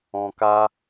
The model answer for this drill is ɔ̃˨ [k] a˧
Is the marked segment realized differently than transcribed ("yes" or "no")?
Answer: no